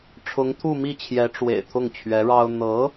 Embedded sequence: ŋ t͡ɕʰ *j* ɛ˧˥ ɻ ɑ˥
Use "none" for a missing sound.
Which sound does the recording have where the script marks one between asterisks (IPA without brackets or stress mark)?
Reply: ɥ